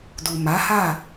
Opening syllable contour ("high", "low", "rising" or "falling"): low